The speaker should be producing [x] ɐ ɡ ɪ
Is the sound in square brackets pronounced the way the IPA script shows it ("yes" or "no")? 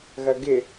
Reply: no